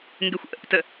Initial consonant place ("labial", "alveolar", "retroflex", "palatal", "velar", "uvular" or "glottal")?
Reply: velar